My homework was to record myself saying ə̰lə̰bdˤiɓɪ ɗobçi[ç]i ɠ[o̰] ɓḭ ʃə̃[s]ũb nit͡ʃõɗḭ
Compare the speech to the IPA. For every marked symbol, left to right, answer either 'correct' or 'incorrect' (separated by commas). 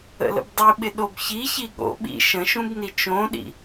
correct, correct, incorrect